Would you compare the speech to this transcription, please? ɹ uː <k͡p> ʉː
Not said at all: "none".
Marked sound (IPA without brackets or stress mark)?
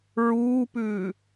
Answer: p